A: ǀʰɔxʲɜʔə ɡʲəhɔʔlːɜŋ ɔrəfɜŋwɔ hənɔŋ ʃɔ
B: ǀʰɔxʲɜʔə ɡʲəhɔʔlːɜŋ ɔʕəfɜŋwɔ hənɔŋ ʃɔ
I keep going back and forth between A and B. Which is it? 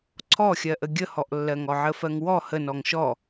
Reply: B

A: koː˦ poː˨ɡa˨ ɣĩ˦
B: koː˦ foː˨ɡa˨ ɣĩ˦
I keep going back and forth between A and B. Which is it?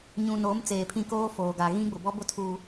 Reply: B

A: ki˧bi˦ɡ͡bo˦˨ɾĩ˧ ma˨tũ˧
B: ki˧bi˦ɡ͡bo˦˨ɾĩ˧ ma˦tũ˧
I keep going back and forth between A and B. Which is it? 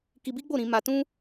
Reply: A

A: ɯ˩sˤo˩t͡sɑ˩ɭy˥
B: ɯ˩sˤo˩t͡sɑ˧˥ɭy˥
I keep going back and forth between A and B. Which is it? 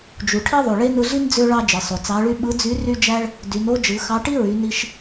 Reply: B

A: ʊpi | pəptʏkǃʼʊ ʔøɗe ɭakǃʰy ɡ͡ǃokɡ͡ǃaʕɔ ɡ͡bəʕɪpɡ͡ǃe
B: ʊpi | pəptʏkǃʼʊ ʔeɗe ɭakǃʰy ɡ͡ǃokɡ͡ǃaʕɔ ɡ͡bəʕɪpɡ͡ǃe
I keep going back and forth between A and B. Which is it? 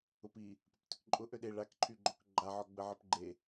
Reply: A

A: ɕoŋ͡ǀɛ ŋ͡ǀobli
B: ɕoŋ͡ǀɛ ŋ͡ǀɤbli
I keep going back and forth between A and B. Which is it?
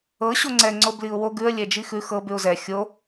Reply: A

